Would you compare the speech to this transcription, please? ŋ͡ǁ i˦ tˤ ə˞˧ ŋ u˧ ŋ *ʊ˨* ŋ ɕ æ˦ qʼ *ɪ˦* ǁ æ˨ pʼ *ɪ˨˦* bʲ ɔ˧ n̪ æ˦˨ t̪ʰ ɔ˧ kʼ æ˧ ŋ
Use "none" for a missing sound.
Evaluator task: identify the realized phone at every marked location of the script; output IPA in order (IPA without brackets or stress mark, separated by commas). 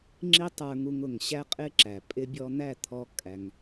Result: ʊ˨, ɪ˦, ɪ˧